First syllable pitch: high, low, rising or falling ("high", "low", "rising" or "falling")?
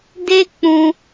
high